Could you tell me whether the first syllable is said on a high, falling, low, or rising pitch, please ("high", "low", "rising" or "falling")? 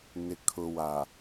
low